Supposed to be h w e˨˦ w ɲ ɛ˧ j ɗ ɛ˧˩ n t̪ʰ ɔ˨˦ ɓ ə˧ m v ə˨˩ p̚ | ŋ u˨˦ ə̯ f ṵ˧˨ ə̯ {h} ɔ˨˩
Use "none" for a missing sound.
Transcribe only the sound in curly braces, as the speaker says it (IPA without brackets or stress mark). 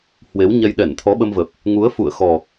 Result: x